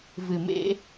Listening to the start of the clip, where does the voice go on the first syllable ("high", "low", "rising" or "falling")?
low